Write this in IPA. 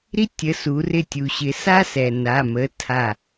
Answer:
ɾ i˥ tʲ ə˩˧˩ s u˩˧ r ɪ˧˩ tʲ u˩ ɕ ɪ˩˧ s a˥ s ɛ˩ n a˩˧˩ m ə˩˧˩ tʰ a˧˩

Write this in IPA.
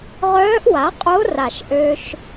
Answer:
ʁ œː˧˥ ʔ w a˩˥ qʼ o˧˥ r a˨˩ ʃ ʔ ø˧ ʃ

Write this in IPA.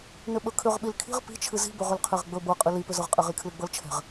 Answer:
n ʏ ɓ ɵ kʰ ʏ ʁ ɓ i l kʰ i̤ ʁ p i̤ t͡ʃʰ ɨ z i̤ b ɵ ʁ ʏ l qʰ e ʁ ɡ͡b ɵ b ɤ qʼ ɨ l i p ʏ z ɤ ʁ qʼ e ʁ i kʰ l ɨ ɡ͡b ɤ l t͡ʃʰ ɛ̤ ʁ

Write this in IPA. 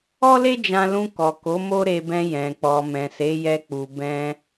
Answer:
ɔ˦ l e˦ d͡ʒ ã˧ l ũ˧ k ɔ˨ k o˨˦ m o˦ ɾ e˧ b ɛ̃˧ j ɛ̃˨ k͡p ɔ˨ m ɛ̃˨ s e˨˦ j ɛ˧ k͡p u˨ b ɛ̃˧

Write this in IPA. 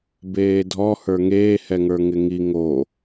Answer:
b eː dʱ ɔ h ə˞ ŋ eː h ɛ ŋ ə˞ ŋ ɪ ŋ i ŋ o

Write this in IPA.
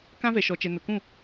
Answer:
k ã˦ v ɛ˨ ʃ ɔ˨ t͡ʃ ɛ˨ n ʊ˨ k ũ˦˨

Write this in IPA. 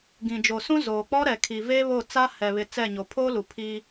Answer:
ɡ ĩ˨ d͡ʒ o˨ s ũ˦ z oː˨ k͡p ɔ˦ ɾ ɛ˨ kʰ i˨ v eː˦ β o˦˨ t͡s a˦ h ɛ˨ β ɪ˨ t͡s ɛ˦˨ ɲ o˨ pʰ oː˦ l u˨ pʰ i˦

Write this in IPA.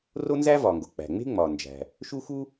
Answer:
r o˥ n z æ˥ v ɒ˩ ŋ ɡ o˩ k͡p æ̤˩ ŋ͡m e̤˥ ŋ͡m ɒ˩ n d͡ʒ æ̤˩ | ʃ u˥ x u˥

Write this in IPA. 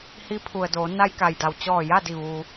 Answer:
h i˧˥ pʰ u˩ ə̯ d oː˩˧ n a˧ j k a˩ j d a˩ w t͡ɕ ɔː˧˩ j a˥˨ d i˧˩ ʋ uː˩

